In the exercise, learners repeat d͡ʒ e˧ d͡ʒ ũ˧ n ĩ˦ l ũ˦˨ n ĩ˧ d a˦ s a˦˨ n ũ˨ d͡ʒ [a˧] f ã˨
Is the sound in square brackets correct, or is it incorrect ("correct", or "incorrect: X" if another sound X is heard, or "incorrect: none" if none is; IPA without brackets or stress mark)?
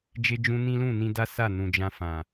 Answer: incorrect: ã˧